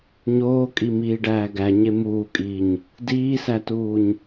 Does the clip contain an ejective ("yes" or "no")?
yes